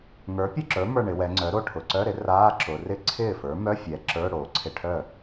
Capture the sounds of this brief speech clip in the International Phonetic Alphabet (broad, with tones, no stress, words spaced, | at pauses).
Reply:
ŋə˞˩˥pʲʊ˥˩ǁə˞˩˥mə˞˧˩ ɳɪ˩˧wɛ˩˧ŋ͡ǀœ˩˥ɾo˥˩ ʈʰʊ˩ǀœ˧˥˧ɾɪ˩˥ raː˧˥˧ǁʊ˩˧ rɪ˥˩ ǀʰɪː˥˩fə˞˩˥ mœ˧˥˧fʲɛ˩˧ ǁə˞˧˥˧ ɽoː˩˧ǀʰɪ˥˩ ʈʰœ˥˩